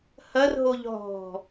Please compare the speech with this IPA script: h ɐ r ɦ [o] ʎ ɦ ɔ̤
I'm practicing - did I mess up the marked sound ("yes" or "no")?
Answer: no